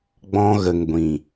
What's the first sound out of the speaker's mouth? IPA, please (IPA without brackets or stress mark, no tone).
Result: ɡ͡b